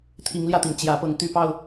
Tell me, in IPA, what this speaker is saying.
t̪ʰ i˨˦ ŋ l j ä˧ t̪ i˩ ŋ t͡ɕ j ä˨˦ p ɤ˨˦ ŋ t̪ y˥˨ p ɑ˥˨ ʊ̯

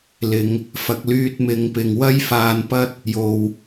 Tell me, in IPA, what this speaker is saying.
l ɪ˨ ŋ | f ɐ˨ k̚ l yː˧ t̚ m ɪ˨˧ ŋ p ɪ˨ ŋ w ɐ˥ j f aː˧ n p ɐ˥ t̚ | j o˨ w

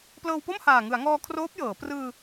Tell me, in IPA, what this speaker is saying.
p l ɤː˧ w p o˥˩ m h aː˨˩ ŋ ɯ˩˦ a̯ ŋ ɔː˧ kʰ r oː˦˥ p̚ j ɤː˩˦ p r ɯː˧

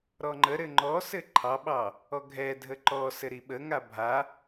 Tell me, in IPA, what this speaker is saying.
ɾ ɔ ŋ͡ǃ ə ɾ ɘ ŋ͡ǃ ɔ s ɘ ǃʰ ɑ ɓ ɑ | ɔ ɡʱ ɛ dʱ ə ǃ ɔ s ɘ ɾ i ɓ ə ŋ a bʱ a

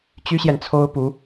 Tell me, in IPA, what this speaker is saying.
t͡ɕ y˥ ɕ j ɛ˨ n t͡sʰ o˥ ʊ̯ p u˧˥

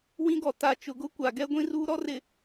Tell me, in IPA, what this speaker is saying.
w ĩ˦ ɡ ɔ˨ t a˨ t͡ʃ ʊ˨ ɡ ʊ˦ kʷ a˨ ɡ ɛ˦ ɡʷ ĩ˦ r uː˦ ɾ ɔ˦ r ɪ˨

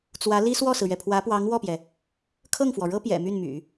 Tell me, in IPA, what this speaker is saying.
t͡s w ä˧˥ l i˥ s w ɔ˥˩ s ɹ̩˩ ɥ ɛ˩ pʰ w ä˧˥ p w ɑ˧˥ ŋ w ɔ˥˩ p j ɛ˩ | kʰ ɤ˥˩ ŋ f w ɔ˩ ɻ ɤ˥ p j ɛ̰˨˩ m y˥˩ n m y̰˨˩˦

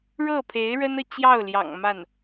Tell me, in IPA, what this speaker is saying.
ɻ ɤ˥˩ pʰ e˧˥ ɪ̯ ɻ ə˥ n ɤ˨ t͡ɕ j ɑ˥˩ ʊ̯ l j ɑ̰˨˩ ŋ m a˥˩ n

